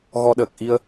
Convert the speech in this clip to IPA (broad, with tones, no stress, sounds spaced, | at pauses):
ɣ ɔ˧ ɗ əː˨˩ k̚ ʔ i˧ ə̯